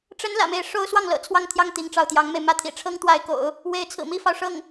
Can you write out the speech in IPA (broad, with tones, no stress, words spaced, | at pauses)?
ʈ͡ʂə˧˥n lä̰˨˩me˥˩ɪ̯ ʂo˥ʊ̯ swɑ˥˩ŋlɤ̰˨˩ t͡sʰwɑ˥˧ŋt̪ʰjɑ˥˩ŋ t̪i˧˥ŋʈ͡ʂɑ˥˩ʊ̯t̪jɑ˧˥ŋme˧ɪ̯ mä˥˩t̪ʰḭ˨˩ ʈ͡ʂʰɤ˥ŋt̪wa˧˥ɪ̯ko̰˨˩˦ʊ̯ | we˧˥ɪ̯t͡sʰɹ̩˨˩mi˥fɑ˨ʊ̯ ʂɤ˥˩ŋ